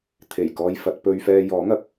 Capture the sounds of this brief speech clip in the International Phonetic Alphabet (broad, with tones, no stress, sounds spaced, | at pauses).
t̪ʰ e˨˩ j k ɔː˥ j f ɐ˨˥ t̚ p ɵ˥ ɥ f ɛː˧ j ɔː˨˥ ŋ ɐ˨˥ k̚